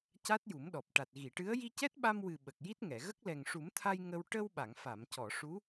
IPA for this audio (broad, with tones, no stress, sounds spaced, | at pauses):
c a˦˥ t̚ j u˨˩˦ m ɗ ɔ˨˩ p̚ ʈ a˨˩ t̚ ɣ i˨˩˨ ʈ ɨ˧˥ ə̯ j i˧ c ɛ˦˥ t̚ ɓ a˧ m w ɨ˨˩ ɓ ə˨˩ k̚ j i˦˥ t̚ ŋ ɛ˨˩˨ ɣ ə˦˥ k̚ l ɛ˨˩ ŋ ʂ u˨˩˦ m t̪ʰ a˧ j ŋ ə˧ w ʈ ə˧ w ɓ a˨˩˨ ŋ f a˨˩˨ m c ɔ˨˩˨ ʂ u˧˥